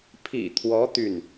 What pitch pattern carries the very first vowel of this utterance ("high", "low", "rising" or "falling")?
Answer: low